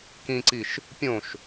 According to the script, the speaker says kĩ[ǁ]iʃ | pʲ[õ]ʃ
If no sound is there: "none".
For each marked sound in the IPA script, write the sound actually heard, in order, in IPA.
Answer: ǀ, õ

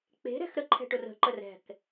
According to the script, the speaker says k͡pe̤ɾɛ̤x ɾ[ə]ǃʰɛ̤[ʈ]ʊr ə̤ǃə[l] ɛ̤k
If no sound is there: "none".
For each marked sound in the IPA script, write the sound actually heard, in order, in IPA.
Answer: ə, ʈ, r

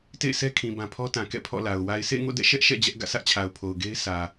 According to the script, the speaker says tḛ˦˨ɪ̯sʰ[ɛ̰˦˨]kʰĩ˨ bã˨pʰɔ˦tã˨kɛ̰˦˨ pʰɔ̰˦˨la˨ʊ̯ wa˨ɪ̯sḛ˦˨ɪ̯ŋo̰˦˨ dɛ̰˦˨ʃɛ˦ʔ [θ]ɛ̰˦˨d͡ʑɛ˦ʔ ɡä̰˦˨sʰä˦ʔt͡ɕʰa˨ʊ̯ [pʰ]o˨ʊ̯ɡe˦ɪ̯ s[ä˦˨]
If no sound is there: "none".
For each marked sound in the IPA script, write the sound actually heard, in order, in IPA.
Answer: ɛ˦, ʃ, pʰ, ä˨

